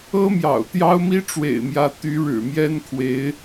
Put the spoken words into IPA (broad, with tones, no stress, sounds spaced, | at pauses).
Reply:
ɤ˥ m j ɑ̰˨˩ ʊ̯ t̪ j ɑ˥ ʊ̯ m i˥ ʈ͡ʂ w ḛ˨˩ ɪ̯ m j ä˧˥ t̪ y˧˥ ɻ ɻ̩˨˩ m j ɛ˥ n kʰ w e˧˥ ɪ̯